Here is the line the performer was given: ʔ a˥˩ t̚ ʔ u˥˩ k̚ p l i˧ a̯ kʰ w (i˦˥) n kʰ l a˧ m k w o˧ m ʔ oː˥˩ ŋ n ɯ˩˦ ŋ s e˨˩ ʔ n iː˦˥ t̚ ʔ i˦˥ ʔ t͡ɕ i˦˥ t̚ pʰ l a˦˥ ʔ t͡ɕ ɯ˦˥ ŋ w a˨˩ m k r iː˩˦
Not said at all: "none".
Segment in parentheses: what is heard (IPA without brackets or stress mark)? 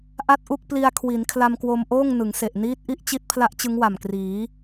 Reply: i˩˦